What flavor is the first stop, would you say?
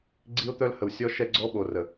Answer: click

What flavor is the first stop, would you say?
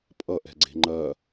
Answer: ejective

